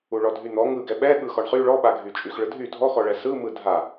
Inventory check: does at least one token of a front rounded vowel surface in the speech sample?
yes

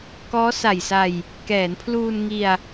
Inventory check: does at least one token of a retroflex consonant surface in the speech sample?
no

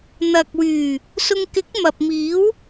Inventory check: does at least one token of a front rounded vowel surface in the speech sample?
yes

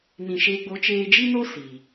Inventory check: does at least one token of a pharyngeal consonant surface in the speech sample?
no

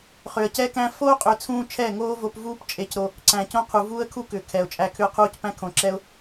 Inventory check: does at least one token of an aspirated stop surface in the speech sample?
yes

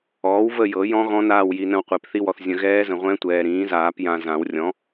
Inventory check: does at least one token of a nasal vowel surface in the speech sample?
yes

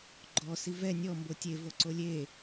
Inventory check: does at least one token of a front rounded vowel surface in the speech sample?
no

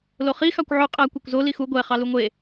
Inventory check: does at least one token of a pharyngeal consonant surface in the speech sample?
yes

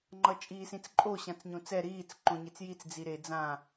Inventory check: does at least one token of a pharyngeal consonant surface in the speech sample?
no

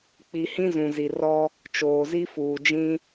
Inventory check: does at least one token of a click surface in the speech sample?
no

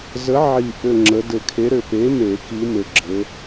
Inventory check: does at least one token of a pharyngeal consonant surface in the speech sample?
yes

